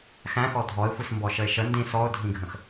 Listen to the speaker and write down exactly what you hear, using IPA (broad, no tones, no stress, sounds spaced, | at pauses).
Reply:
x æ̃ x ɔ dʱ ɔ ɪ̯ xʷ i s m b ɔ ʃ ə ɪ̯ ʃ ə n d ĩ s ɔ ʊ̯ dʱ ĩ ɡʱ ə̃ x